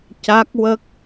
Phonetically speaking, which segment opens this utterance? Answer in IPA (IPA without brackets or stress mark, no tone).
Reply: c